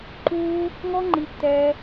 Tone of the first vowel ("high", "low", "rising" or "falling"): high